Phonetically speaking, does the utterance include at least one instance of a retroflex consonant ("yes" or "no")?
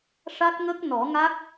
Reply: yes